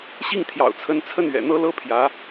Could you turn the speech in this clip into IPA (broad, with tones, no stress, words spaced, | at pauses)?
ɕi˥˩ŋt̪ʰjɑ̰˨˩ʊ̯t͡sʰə˧˥nt͡sʰə˥˩n ɥɛ̰˨˩n̪ɤ˥lɤ˥pʰjä˧˥